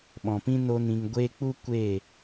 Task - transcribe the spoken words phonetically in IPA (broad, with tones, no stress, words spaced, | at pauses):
ɓɔ̃˨pĩ˦ no˦nĩ˧ŋ ɡʷeː˦ k͡pu˦ kʷe˦˨